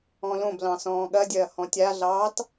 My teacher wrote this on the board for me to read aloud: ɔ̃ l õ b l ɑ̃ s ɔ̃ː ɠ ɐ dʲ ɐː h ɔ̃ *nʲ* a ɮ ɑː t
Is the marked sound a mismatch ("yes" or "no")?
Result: yes